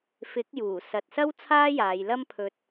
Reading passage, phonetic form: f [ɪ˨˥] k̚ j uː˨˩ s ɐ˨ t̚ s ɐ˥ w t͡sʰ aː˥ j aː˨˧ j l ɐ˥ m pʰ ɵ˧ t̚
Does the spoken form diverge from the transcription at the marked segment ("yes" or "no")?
no